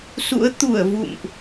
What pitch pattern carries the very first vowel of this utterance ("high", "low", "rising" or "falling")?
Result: rising